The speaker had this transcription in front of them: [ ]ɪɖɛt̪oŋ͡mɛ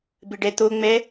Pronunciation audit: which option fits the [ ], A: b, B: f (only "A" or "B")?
A